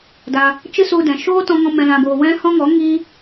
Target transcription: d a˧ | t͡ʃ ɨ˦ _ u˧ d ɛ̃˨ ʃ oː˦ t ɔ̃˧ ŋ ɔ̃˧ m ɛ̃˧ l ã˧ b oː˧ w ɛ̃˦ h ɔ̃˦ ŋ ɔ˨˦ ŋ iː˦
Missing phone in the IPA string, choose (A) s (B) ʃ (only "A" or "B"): A